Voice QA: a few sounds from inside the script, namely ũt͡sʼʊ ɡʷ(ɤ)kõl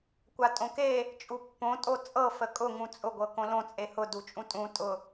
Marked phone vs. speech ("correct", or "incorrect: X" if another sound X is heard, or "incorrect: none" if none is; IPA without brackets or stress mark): correct